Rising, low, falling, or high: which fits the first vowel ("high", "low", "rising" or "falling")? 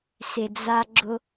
low